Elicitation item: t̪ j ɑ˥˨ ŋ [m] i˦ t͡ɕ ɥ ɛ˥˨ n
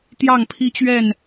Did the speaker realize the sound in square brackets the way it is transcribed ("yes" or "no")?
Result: no